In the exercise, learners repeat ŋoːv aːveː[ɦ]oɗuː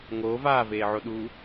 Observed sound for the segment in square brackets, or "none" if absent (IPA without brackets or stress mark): ʕ